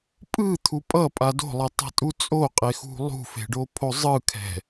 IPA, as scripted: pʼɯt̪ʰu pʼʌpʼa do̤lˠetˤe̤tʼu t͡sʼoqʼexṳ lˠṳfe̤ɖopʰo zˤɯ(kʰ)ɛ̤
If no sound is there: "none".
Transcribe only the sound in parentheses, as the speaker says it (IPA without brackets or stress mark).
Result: kʰ